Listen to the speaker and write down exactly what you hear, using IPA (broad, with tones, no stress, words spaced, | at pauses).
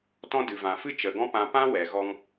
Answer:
tɔ̃˦dɨ˨ vã˨fɨ˦t͡ʃə˨ɡɔ̃˦ pã˧pã˦ wɛ˨ɣɔ˧ŋ